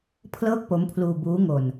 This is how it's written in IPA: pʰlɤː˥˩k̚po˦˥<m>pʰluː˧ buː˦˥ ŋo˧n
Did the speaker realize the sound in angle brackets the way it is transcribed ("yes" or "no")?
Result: yes